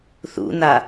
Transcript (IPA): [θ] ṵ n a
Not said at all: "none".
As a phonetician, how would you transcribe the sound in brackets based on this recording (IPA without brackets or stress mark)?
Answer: θ